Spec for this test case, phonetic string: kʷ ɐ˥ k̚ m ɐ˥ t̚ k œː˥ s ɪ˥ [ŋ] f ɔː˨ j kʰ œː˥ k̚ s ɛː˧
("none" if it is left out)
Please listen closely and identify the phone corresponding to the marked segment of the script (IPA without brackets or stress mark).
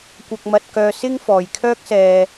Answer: ŋ